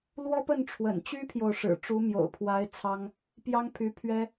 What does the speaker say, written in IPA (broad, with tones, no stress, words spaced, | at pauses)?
lwɔ˥pə˥˩n ʈ͡ʂʰwə̰˨˩nt͡ɕy˥pʰjo˨ʊ̯ʂɻ̩˨˩ ʈ͡ʂu˧˥mjo̰˨˩ʊ̯pʰwa˧˥ɪ̯ t͡sʰɑ˥ŋ | pjɑ˥ŋpʰy˧˥ pʰɥɛ˥